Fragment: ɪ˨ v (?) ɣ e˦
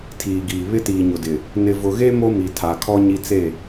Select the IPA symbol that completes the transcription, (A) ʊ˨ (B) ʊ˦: A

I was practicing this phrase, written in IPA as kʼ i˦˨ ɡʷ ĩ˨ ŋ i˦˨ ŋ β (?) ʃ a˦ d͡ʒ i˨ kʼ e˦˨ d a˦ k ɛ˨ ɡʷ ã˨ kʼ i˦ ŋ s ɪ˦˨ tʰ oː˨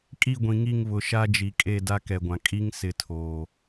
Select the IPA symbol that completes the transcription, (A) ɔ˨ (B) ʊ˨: B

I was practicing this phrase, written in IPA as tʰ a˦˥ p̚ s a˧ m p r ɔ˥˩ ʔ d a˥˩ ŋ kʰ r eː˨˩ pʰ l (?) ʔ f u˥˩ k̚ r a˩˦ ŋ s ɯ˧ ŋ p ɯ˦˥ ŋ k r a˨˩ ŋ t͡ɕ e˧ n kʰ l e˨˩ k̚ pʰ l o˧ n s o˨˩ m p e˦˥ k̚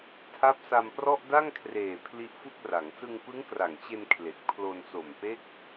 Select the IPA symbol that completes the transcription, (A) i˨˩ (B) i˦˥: B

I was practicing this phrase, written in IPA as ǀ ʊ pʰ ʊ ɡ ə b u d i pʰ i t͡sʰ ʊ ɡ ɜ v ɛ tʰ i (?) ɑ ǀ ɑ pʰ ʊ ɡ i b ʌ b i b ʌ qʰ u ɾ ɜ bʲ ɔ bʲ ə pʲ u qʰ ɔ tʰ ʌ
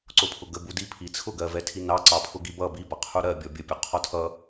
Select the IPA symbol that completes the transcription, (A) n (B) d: A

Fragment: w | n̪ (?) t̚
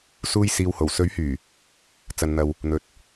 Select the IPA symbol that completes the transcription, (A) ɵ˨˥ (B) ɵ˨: B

